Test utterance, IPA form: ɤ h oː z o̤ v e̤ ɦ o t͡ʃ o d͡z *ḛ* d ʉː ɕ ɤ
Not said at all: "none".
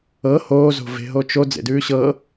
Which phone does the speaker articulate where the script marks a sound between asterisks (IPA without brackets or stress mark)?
ḛ